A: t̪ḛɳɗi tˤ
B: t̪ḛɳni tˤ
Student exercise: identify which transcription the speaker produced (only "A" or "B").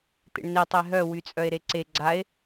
B